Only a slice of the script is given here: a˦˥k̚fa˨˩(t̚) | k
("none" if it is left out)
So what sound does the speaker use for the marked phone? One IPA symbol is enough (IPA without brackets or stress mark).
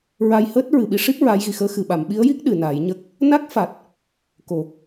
t̚